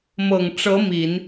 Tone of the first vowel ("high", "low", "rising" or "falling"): low